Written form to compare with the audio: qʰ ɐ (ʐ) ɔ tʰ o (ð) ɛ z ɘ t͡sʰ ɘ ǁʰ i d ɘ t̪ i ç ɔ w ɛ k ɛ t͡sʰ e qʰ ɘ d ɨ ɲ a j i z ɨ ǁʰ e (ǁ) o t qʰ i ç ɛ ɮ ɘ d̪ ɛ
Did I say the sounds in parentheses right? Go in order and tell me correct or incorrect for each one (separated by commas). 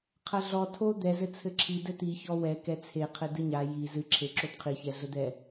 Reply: incorrect, incorrect, correct